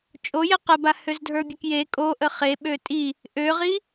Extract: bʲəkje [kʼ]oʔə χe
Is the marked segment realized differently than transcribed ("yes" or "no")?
no